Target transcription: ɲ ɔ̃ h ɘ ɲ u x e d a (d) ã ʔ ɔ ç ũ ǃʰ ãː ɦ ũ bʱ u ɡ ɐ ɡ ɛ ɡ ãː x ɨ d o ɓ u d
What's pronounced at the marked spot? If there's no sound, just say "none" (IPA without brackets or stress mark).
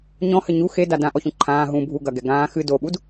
d